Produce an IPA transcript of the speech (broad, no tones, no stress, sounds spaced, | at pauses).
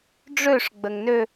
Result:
ɖ͡ʐ ø ʂ ɡ͡b ə ŋ n ø